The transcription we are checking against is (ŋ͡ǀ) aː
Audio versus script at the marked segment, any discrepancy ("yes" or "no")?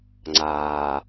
no